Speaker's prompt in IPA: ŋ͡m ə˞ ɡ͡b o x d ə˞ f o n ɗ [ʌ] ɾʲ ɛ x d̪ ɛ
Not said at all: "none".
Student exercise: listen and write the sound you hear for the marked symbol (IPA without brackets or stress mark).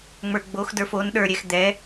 ə˞